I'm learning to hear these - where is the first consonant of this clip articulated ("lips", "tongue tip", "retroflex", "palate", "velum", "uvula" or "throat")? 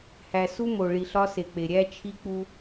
throat